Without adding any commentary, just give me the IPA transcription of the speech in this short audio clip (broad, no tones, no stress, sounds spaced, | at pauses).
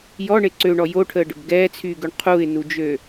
j ɔ ɳ e ǀ ø ɳ ɔ j o ʈʰ əː ɖ ə̰ b ɡ ɛː t͡sʰ yː ɡ ø ɳ qʰ u ɪ̯ n u d͡ʒ ø